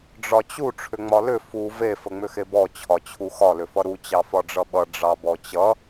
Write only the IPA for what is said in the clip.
ɖ͡ʐɒt͡ɕu ʈ͡ʂʰʏŋ͡mɒlʏ fu ve fəŋ͡mʏxebɔ t͡ɕʰɒt͡ɕʰuxɒ lʏfʌɾu t͡ɕɑfɒɖ͡ʐʌɓʌ ɖ͡ʐɑbɔt͡ɕʌ

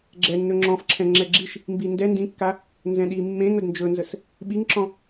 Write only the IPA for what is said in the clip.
ɡ͡ǁɛnːɵ ŋ͡ǁɔ̃fǁʰɛ̃ ŋ͡ǁɛɡ͡ǁiʃ | mbindɛ ndĩkːa | nzɛ̃ɗi mːẽŋ ɵdnd͡ʒɵnzəs | ɓiŋǁɔ̃

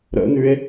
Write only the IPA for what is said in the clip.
ɾə̰nʉe̯

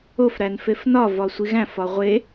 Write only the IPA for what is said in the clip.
ofɾæn fefnɒvɒ sʷiɣæ̃fɒ ʁʷe

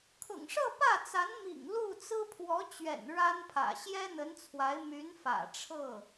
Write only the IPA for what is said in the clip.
kʰʊ̰˨˩ŋʂɤ˥˧ pä˥˩t͡sa˧˥n mḭ˨˩ŋ lu˥˩t͡sɹ̩˥ pʰwɔ˧˥t͡ɕɥɛ̰˨˩n ɻa˥npʰä̰˨˩ ɕjɛ˥ n̪ə˧˥nt͡sʰwa˧˥ɪ̯ my˧˥nfä̰˨˩ ʈ͡ʂʰɤ˥˩

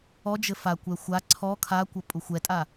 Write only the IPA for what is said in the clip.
ɔd͡ʒɘ fakʷɛ xʷa ǀʰɔ kʰakʷɐ pʼuxʷɛtʼa

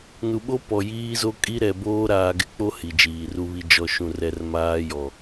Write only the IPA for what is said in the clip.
nu˨ɓo˦ pɔ˨jiː˦zo˦ kʼi˦ɾɛ˨boː˦ɾaː˨ ɡɪ˦k͡po˦ hi˨d͡ʒiː˨ru˦βi˦ d͡ʒɔ˨ʃũ˨rɛ˨r maː˦jɔ˨

